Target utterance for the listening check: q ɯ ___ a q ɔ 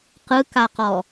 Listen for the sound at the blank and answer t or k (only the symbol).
k